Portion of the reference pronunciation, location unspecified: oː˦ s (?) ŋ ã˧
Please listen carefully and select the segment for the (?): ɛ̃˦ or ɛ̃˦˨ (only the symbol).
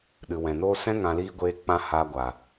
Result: ɛ̃˦